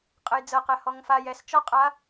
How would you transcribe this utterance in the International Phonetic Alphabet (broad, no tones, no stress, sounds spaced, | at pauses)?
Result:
qʼ ə j d͡z ɤ q ɛ h ɔ ŋ f a j ɛ s t͡ʃ ɔ qʼ a